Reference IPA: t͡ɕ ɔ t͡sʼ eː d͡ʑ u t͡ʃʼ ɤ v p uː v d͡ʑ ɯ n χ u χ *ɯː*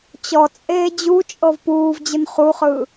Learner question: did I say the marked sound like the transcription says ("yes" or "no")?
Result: yes